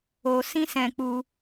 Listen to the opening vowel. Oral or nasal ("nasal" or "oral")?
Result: oral